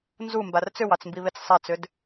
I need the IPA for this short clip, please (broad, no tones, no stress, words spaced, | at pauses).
nzumbar t͡sʏwɑt͡smbiβet͡s sˤat͡sʏd